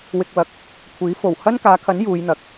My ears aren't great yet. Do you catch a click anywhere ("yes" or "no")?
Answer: no